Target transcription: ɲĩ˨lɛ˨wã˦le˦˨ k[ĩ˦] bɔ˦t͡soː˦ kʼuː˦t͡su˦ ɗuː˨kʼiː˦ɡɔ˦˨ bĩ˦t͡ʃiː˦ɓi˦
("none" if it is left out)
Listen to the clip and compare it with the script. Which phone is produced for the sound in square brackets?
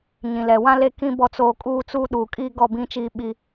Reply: ĩ˦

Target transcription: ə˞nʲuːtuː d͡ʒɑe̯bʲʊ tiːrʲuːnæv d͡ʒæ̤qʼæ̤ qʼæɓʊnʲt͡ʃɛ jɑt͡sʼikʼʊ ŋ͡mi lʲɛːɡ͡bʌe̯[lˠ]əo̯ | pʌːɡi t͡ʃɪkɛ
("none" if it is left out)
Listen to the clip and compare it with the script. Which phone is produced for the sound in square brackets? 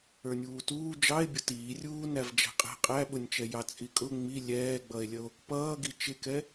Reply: lʲ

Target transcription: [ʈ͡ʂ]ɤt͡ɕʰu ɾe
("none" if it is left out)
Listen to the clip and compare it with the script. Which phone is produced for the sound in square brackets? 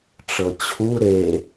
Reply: ʈ͡ʂ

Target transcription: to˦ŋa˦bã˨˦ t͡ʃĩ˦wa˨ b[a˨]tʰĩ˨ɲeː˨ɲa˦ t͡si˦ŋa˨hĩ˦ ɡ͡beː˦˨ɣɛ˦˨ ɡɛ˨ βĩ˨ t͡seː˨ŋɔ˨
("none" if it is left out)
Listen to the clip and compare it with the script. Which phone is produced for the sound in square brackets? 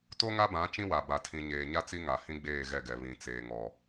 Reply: a˨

